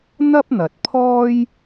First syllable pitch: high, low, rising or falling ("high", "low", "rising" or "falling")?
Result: high